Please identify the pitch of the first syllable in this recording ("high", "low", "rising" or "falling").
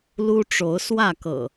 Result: high